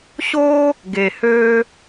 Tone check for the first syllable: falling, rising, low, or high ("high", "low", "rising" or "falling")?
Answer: high